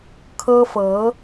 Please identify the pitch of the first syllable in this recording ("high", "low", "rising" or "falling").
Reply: high